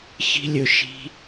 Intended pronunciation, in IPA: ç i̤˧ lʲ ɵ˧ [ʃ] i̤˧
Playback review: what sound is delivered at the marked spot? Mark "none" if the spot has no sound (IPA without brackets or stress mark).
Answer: ʃ